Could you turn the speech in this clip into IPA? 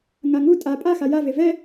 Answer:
ŋaŋu tʼa pʼaxa jave vɛ

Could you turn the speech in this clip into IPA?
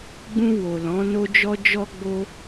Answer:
ɡ͡bũ˧ wo˨lɔ̃˨˦no˦d͡ʒɔ˦ d͡ʒɔ˧ɡ͡bo˧

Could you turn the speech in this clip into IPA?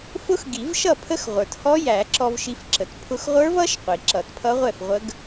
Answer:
fʊ˦˥x ɡi˨˩˦vʃʌ˥˩pʰə˦˥x ʁʷə˞˩thɔ˦˥jæ˨˩˦ǁɔ˧v ʃi˧fǁə˩t pʰʊ˧xʁʷə˞˦˥vʌ˦˥ʃ qʷi˩ǁʌ˨˩˦tpʰʌ˦˥ʁʷɛ˥˩f ʁʷə˦˥ɡ

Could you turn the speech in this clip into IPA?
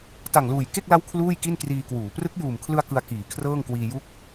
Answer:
ta˨˩ŋluː˨˩jke˥˩k̚la˦˥w kʰluː˥˩jki˥˩n kriː˧kwuː˩˦ prɯ˦˥k̚juː˨˩mkʰlɯ˧a̯ kɯ˧a̯kiː˩˦kʰrɤː˥˩ŋkwiː˧ ju˦˥k̚

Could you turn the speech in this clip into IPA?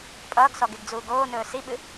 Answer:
pʼʌːɡsɔɡeɡd͡zuːɡ oːnɵː siɓɨ

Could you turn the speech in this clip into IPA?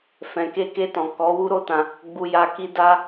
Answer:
fɛ̃˨ke˧ke˧tɔ̃˨ kɔ˨˦wu˦ɾo˦tã˧ | ɡ͡bu˧ja˧ki˦ da˦

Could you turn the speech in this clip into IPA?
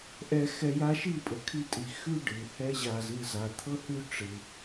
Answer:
ʔɛ˧xɛ˧ja˦ ʃi˦˨pʼɤ˨kʰi˧tʼi˨ xʉ˦ ɖɯ˨hɛ˦ʑa˧z ɯ˦˨z a˨t̪ʰɤ˦hʉ˦ ʈ͡ʂɯ˧

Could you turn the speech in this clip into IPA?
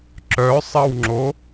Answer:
ǁœsˤɐwŋ͡ǁo

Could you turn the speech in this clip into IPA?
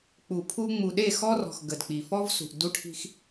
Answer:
k͡pu˨pʰu˦ ŋ͡mu˨ɗe˦˨xɔ˦rɔ̤˨x ɡə˨dk͡pi˨ fɔ˦vsṳ˨ʔdu˦ʈʰi̤˦x

